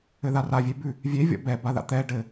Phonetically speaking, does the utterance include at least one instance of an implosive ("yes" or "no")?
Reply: no